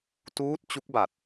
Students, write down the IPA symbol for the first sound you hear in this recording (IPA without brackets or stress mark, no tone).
t